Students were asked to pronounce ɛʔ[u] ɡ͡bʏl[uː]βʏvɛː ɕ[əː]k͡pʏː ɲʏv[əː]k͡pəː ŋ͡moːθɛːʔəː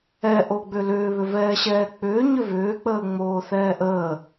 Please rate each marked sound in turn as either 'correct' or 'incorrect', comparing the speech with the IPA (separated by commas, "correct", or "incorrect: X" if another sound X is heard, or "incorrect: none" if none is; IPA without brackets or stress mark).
incorrect: o, incorrect: ʏː, incorrect: ɛː, incorrect: ʏː